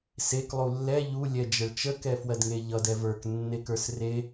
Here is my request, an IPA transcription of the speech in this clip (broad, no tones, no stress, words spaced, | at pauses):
sek lˠulːɛ ʎu lʲɛd͡ʒəɭt͡ʃə kɛfwɜdŋeʎʌd ɛvə˞k nːekə˞sre